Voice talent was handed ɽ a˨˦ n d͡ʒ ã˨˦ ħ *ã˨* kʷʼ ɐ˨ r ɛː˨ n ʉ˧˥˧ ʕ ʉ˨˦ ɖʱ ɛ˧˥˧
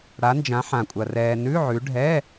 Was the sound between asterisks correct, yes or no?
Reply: yes